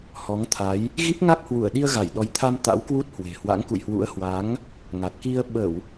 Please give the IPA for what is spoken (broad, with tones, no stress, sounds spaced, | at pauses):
h ɔ˨˦ ŋ t̪ʰ a˨˦ j | ɣ i˦˥ p̚ ŋ a˦˥ k̚ h w u˧˩ ə̯ ɗ i˧ ə̯ ɣ a˧˩ j ɗ ɔ˨˦ j t̪ʰ a˧ m t̪ a̰˧˥ w k w u˦˥ t̚ h w e̤˨˩ h w a̰˧˥ ŋ k ṵ˧˨ j h w ṵ˧˥ ə̯ h w a˨˦ ŋ | ŋ a˨˩ t̚ k i˧ ə̯ ɓ ə˧˩˨ w